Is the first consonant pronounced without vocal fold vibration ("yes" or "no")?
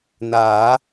no